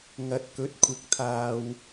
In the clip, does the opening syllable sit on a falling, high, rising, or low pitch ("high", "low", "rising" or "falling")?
low